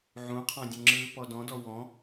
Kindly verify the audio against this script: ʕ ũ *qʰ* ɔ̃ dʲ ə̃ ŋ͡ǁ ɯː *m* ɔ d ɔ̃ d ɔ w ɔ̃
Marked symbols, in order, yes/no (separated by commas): yes, no